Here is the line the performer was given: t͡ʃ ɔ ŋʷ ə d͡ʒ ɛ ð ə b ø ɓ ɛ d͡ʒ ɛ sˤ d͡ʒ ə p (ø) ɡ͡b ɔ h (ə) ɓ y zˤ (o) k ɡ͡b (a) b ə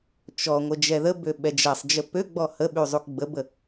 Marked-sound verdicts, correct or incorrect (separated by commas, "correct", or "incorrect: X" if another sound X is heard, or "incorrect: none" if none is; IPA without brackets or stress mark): correct, correct, incorrect: u, incorrect: ə